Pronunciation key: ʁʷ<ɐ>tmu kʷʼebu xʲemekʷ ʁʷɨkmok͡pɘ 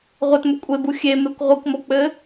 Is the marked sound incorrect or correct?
correct